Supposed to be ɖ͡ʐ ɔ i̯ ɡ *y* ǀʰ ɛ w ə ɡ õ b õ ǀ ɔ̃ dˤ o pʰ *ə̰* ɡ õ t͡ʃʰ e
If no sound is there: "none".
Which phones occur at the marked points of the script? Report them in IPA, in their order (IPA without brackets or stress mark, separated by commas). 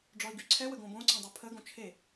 y, ə